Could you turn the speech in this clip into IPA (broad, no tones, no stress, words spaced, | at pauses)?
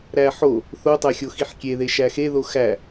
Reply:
ɾæħo | θotˤæxʲo xiħkʲeðe ʃæxeðo xæ